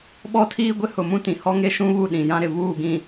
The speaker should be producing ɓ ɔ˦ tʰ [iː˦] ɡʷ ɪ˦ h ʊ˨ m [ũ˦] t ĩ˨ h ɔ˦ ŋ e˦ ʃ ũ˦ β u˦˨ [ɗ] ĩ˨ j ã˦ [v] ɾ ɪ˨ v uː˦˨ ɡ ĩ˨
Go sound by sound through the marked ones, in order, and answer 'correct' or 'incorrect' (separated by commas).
correct, correct, correct, incorrect